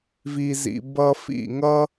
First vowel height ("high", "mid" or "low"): high